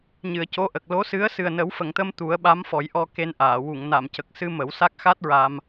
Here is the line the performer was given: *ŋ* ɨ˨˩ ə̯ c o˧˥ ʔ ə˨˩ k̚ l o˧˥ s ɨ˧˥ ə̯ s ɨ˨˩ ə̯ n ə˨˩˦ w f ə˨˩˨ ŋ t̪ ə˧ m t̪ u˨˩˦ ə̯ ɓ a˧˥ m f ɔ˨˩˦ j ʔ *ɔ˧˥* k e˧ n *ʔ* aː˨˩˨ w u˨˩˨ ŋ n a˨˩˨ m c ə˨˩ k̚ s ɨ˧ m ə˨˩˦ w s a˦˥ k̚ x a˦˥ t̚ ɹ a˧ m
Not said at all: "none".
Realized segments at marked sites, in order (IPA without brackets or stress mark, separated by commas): ɲ, ɔ˧, ʔ